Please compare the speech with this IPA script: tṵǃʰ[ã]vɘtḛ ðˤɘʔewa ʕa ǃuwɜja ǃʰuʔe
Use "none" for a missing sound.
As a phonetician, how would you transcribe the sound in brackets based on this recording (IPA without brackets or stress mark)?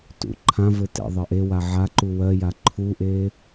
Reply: ã